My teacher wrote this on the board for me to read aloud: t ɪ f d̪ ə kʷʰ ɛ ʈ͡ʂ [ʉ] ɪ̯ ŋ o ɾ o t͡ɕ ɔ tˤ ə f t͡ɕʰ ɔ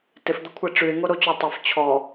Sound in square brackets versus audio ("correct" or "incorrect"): correct